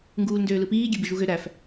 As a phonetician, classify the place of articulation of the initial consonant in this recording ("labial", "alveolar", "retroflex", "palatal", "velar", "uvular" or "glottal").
velar